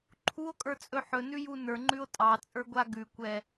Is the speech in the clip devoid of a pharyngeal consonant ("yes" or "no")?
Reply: no